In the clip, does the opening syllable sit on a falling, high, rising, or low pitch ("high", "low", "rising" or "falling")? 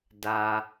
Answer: low